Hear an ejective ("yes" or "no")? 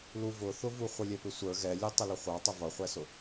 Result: no